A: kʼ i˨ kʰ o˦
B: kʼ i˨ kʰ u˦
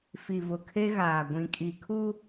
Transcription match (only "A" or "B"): B